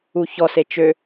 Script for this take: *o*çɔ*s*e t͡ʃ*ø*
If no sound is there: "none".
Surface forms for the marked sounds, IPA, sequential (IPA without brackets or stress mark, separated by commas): u, s, ø